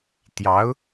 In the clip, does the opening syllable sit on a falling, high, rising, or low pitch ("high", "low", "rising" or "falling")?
rising